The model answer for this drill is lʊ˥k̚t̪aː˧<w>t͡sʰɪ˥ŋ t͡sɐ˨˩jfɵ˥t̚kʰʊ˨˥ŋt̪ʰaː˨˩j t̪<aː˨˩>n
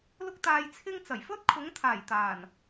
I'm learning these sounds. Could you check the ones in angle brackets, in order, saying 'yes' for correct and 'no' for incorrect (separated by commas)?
no, yes